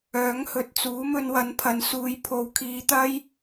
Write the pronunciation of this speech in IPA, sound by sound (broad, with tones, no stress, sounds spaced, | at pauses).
œː˨˥ ŋ h ɵ˨ t̚ t͡s uː˨˥ m ɵ˧ n w ɐ˨˥ n pʰ ɐ˨ n s uː˨˧ j pʰ o˨˥ w kʰ iː˨˧ t̪ ɐ˥ j